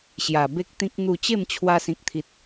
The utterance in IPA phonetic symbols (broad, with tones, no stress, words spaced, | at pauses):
ɕja˨˩ be˦k̚t̪ĩ˦k̚ n̪u˥˧ t͡ɕe˥˧mt͡ɕʰwa˧ sĩ˨k̚t̪ʰi˨t̚